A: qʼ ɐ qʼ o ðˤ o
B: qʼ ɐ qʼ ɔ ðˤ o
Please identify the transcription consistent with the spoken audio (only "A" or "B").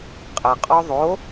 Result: B